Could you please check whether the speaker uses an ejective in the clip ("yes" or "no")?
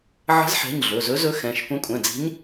yes